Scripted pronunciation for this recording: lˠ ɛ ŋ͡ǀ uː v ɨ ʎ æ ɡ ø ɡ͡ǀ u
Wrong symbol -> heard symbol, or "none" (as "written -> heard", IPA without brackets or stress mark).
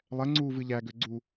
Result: none